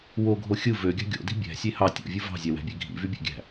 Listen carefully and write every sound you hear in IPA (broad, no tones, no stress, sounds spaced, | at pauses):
w o ɡʱ o xʲ ɯ v ø ɡʲ ɑ̤ ɡʲ o̰ d i̤ bʲ æ̤ sʲ e h ɑ tʲ o̰ vʲ ɯ v ɑ̤ zʲ æ w æ̤ bʲ e ɡʱ ḭ v y bʲ æ̰ ɡʲ æ̤